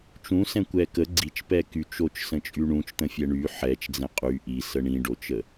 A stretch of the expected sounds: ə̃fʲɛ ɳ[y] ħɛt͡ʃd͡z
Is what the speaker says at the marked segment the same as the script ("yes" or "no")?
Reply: yes